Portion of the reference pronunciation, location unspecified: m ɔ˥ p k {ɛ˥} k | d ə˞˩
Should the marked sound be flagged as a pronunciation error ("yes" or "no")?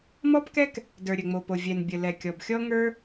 no